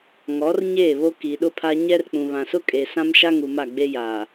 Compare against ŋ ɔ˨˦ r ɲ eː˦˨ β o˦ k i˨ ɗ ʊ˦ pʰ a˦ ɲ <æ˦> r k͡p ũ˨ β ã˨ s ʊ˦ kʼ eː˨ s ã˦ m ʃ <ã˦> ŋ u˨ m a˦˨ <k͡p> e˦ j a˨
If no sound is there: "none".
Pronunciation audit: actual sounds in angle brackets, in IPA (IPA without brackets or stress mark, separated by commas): ɛ˦, a˦, ɡ͡b